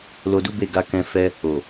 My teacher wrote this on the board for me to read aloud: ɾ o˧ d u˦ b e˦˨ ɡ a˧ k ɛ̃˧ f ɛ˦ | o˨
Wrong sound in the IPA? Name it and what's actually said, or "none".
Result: ɾ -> l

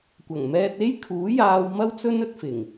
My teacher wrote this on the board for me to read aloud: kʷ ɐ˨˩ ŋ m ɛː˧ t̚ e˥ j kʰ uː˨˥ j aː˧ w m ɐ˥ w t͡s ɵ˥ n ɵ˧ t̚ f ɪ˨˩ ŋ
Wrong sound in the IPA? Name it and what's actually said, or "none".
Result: none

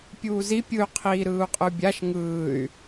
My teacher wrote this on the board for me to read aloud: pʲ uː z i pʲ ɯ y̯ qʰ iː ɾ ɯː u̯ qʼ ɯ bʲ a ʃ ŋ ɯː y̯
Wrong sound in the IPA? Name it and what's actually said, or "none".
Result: none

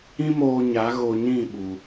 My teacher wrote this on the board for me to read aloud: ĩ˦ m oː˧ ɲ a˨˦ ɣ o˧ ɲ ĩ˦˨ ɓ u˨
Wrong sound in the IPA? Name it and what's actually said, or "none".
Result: none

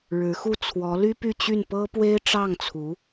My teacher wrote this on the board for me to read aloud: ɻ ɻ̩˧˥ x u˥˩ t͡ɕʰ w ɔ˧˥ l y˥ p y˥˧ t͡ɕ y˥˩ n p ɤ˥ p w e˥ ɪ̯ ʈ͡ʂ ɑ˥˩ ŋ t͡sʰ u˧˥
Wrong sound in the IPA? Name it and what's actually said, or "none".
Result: t͡ɕʰ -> t͡sʰ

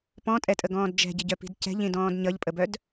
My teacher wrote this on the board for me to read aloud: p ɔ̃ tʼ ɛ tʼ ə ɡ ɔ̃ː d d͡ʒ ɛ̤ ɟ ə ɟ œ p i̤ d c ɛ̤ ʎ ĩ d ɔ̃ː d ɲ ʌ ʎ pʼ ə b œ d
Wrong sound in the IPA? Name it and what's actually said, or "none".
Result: none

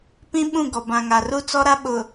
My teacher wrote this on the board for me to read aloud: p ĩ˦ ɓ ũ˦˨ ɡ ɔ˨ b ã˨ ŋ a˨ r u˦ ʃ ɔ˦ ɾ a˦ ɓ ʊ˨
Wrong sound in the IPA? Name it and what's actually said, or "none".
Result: ʃ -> t͡s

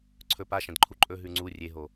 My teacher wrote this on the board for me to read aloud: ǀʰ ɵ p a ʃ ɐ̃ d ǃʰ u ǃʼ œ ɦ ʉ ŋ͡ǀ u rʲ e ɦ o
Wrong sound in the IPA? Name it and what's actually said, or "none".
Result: œ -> ɵ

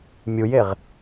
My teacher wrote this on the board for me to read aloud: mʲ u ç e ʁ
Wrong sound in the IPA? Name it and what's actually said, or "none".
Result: ç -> j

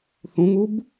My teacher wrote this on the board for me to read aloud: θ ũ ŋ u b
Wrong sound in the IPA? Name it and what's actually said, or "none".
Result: none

